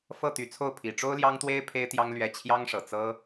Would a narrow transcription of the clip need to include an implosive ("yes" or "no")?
no